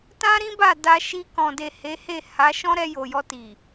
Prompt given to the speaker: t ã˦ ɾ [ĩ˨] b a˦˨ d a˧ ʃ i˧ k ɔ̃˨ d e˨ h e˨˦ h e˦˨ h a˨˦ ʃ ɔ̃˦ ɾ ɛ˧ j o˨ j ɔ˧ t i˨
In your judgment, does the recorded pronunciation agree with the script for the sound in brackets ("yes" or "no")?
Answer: no